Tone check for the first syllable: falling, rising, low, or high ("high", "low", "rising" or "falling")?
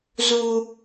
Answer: high